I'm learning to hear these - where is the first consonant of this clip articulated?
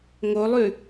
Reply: velum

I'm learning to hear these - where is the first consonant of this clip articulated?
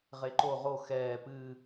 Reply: uvula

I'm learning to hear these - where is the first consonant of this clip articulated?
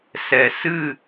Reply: tongue tip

